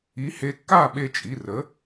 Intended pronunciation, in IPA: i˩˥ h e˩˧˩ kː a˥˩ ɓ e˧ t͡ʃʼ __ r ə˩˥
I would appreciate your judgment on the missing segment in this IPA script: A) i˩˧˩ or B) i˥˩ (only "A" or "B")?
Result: A